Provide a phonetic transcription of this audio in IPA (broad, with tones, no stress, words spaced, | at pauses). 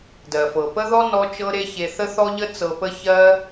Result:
dɜ˩fɤ˩pə˥ðɔ˥ nɔ˥t͡ʃɤ˥ɾe˥ çe˧θə˥θɔ˥ʎə˥ t͡sɤ˧pə˥ çɜ˥